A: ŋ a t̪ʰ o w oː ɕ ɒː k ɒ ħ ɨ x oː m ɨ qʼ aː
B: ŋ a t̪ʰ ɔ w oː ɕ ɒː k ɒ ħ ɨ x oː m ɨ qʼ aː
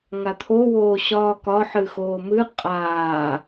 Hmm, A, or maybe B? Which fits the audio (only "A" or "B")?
A